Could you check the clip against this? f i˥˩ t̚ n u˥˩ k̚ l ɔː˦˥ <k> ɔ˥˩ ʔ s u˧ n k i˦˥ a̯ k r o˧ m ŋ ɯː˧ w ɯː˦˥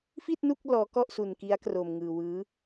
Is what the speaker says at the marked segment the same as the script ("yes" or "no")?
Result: yes